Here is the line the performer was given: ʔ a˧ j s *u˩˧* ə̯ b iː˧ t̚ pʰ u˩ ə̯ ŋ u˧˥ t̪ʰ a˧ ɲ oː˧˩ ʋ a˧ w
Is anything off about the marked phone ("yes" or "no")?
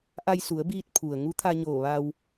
no